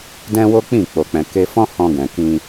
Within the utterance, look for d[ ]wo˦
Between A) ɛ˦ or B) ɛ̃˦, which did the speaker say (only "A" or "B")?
B